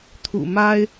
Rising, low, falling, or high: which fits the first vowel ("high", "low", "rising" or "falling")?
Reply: low